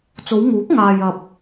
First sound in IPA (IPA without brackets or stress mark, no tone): t͡s